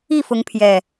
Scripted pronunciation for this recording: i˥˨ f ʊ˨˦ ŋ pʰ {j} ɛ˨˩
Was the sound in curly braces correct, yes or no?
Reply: yes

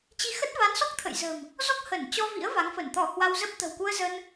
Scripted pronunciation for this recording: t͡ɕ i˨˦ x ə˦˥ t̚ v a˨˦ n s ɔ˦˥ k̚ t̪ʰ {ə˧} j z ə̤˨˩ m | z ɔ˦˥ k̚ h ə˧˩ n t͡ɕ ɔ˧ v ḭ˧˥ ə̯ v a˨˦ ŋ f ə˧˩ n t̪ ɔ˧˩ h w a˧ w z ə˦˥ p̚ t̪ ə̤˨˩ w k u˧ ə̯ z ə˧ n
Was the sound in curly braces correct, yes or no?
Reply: no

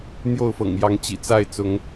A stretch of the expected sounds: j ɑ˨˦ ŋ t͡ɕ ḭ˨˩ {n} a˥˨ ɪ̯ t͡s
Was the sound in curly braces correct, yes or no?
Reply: no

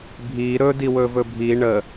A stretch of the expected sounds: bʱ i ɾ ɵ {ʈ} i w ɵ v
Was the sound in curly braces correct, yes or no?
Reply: no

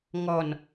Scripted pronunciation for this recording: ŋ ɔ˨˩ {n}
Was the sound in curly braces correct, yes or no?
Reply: yes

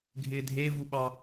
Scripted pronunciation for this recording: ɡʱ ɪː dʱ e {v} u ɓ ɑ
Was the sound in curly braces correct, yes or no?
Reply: yes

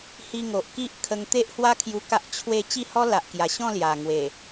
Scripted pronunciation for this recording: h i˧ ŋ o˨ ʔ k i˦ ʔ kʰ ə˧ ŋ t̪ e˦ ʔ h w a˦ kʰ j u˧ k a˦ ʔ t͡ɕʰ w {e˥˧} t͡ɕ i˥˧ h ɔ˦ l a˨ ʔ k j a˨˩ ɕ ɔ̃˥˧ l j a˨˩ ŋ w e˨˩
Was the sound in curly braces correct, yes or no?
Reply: yes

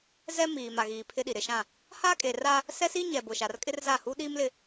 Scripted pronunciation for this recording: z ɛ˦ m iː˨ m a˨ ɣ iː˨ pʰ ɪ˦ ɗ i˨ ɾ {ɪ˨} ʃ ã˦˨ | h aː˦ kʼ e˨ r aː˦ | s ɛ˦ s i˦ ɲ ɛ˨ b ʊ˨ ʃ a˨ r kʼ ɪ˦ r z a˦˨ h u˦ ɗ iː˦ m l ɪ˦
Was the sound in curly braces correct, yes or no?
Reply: yes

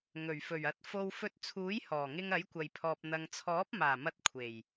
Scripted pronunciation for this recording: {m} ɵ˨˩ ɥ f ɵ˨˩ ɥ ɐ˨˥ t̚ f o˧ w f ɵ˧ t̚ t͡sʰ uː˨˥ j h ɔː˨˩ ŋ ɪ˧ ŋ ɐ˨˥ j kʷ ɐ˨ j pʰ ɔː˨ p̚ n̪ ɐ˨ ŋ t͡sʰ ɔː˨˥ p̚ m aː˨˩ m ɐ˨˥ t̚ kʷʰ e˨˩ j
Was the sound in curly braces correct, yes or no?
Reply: no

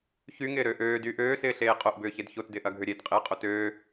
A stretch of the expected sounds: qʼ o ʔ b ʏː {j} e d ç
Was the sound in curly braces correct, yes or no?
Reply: no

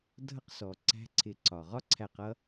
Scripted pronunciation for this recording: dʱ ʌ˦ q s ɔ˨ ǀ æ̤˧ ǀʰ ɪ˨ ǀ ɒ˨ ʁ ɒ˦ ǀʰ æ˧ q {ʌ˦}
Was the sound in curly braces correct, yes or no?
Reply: yes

